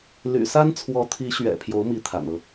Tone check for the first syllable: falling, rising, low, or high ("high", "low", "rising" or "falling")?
low